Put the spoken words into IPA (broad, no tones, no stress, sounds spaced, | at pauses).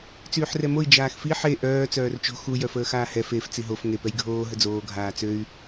t͡s yː ħ r ɛ m o i̯ d͡ʒ aː x f i ħ e ʔ œː t͡s œː r t͡ʃ o̤ x u j œ f əː x aː h ɛ f e f t͡s i ɦ o f ŋ e p ɛ j ɡʱ oː ɦ ə d͡z oː ɡʱ aː t͡s ø y̯